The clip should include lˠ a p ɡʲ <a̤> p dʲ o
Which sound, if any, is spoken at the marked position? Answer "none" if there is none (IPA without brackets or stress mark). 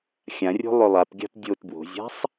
a̤